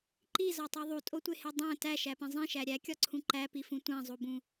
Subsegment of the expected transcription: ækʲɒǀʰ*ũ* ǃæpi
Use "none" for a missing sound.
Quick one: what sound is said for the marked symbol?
ũ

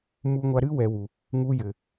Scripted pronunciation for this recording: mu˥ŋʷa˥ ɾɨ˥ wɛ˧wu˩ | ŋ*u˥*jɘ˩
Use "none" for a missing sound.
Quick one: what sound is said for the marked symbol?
u˥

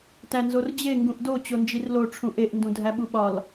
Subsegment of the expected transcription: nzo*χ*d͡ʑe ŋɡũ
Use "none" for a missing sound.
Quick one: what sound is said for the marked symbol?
r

